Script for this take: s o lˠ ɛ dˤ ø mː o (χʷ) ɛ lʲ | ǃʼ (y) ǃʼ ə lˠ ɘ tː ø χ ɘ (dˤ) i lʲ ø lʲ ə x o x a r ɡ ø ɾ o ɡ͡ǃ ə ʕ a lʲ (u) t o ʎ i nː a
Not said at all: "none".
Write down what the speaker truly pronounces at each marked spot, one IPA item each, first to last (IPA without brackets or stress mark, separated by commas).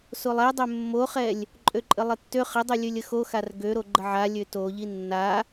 χ, ø, dˤ, ø